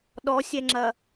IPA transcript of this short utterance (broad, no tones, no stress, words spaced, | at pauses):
ɗɔsʲɛŋ͡ǁɐ